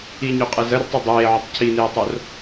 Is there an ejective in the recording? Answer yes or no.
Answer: yes